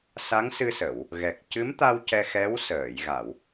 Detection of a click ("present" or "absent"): absent